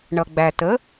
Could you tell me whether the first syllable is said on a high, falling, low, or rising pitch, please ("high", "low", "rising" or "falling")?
low